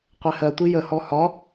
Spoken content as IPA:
qʷ ɛ h ɜ tʷ i j ə h ɔ h ɒ

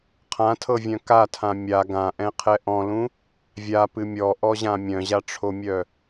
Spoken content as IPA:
qʰ ã tʰ ɤ vʲ œ̃ k a tʰ ã mʲ a ɡ ã ʔ ɛ̃ qʰ ɛ ʔ ɔ̃ l ũ | vʲ a p ɨ mʲ ɔ ʔ ɔ ʑ ã mʲ œ̃ ʑ a ʈ͡ʂʰ o mʲ œ

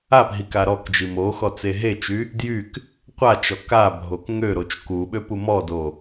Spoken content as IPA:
a p ɦ i k a ɾ ɔ k d͡ʒ i m o x ɔ t͡s e ɦ e t͡ʃ y | d j y k | qʷ a t͡ʃ ɔ k a bʱ o k ŋ ø ɾ o t͡ʃ k u ɓ ø p u m ɔ d o

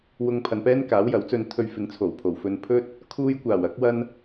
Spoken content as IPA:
w ʊ˧ ŋ pʰ ɐ˨ n p ɛː˥ n k aː˨˥ w j ɐ˨˥ w t͡s ɵ˧ n t̪ʰ ɵ˧ ɥ f ɪ˨˧ ŋ t͡sʰ o˨˩ w pʰ o˨˩ w f ɵ˧ n pʰ ɵ˥ t̚ | kʰ uː˧ j kʷ aː˨˩ w ɐ˨˥ k̚ w ɐ˧ n

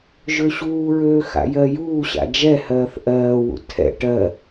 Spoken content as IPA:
ʒ ø ɕ uː ɹ øː x a̰ j ɜ j uː ɕ a̰ d͡ʒ ɛ h ɜː θ ʔ ɜː w ṵ tʰ ɛ̰ ʈ ɜ

